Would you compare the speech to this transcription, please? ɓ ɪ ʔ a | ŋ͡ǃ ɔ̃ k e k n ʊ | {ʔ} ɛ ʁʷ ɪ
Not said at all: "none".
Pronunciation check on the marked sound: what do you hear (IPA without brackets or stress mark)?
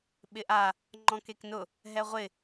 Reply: ɦ